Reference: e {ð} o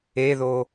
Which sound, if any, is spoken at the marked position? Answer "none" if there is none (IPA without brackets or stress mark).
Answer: ð